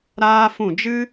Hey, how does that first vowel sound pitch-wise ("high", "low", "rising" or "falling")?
high